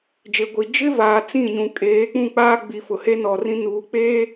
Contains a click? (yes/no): no